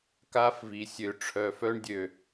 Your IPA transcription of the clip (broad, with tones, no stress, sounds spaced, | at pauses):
k a˦ f v i˨ sʲ ø˨ ʈ͡ʂʰ œ˨ f œ˦ ɳ dʲ ø˨